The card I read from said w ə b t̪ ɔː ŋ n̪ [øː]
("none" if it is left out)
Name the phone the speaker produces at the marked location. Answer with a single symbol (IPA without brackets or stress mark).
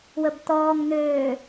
øː